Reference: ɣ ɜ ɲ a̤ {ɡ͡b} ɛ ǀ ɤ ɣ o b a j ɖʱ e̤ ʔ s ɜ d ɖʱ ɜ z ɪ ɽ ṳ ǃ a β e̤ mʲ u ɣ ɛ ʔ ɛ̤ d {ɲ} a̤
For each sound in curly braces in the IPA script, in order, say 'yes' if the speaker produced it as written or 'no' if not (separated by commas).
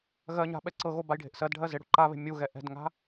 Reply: no, no